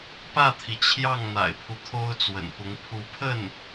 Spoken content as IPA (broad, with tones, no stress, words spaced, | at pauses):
pä˥˩t̪ʰi˩ t͡ɕʰjɑ˥˩ŋn̪a̰˨˩ɪ̯pʰu˦ t̪ʰo˥ʊ̯t͡swə̰˨˩npʊ˧˥ŋ pʰu˧˥ pʰə˥˩n